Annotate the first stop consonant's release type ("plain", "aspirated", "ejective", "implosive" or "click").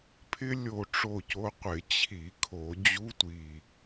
aspirated